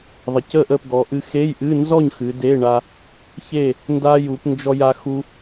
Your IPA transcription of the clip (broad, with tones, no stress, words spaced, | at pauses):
ðˤə˩˧cə˥˨ʔə˥˨p ɡɔ˩˧ʔɨ˧ xe˧˥˧jʔɨ˧˥˧ nzɔ˥˨ɲ xɨ˩˧de˧˥˧ɳa˧ | çe˥˨ | nda˧ ju˩˧pnd͡ʒɔ˧ja˧ xu˧